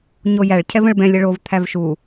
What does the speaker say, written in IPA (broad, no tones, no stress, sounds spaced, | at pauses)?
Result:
ɲ o j æ ɭ cʰ ɛ v ə̃ ɭ b ɛ̃ lʲ ə ɭ o v t̪ʰ æ v ʃ u